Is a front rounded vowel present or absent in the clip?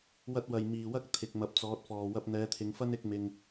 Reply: absent